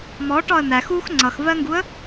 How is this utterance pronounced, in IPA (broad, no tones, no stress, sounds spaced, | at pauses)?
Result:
m ɔ ʈ ɒ ə̯ n̪ æ x u x ŋ͡ǀ ʌ x v ɜ ŋ ɡ u ə̯